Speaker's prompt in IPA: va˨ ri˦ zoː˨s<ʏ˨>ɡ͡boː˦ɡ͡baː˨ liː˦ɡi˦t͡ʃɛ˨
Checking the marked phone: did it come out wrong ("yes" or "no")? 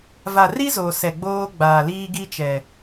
yes